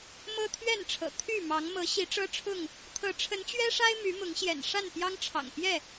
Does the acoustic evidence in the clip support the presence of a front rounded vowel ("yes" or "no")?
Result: yes